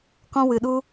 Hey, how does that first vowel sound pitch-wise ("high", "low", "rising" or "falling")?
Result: high